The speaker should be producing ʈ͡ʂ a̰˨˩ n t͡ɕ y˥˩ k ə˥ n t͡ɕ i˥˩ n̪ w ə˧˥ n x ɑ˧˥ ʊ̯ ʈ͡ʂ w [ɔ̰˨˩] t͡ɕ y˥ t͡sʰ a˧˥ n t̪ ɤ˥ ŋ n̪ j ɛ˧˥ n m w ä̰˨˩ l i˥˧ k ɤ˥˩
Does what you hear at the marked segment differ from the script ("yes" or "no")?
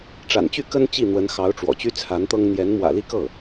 no